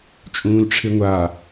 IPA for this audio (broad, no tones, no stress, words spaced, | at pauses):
t͡ʃʼũːlʈ͡ʂʰɪŋʷa